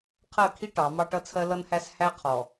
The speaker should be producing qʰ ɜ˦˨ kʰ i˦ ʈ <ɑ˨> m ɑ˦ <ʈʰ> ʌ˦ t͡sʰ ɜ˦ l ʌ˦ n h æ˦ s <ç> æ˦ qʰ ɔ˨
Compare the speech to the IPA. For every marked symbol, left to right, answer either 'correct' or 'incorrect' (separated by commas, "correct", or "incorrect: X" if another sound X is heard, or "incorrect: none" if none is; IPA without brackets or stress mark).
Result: incorrect: ɑ˨˦, incorrect: ʈ, incorrect: h